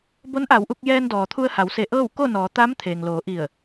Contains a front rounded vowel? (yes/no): no